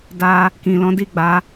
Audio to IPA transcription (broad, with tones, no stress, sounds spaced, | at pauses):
d a˧ | k ĩ˨ l ɔ̃˨˦ d i˦˨ ɡ͡b a˨˦